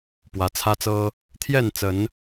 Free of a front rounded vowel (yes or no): yes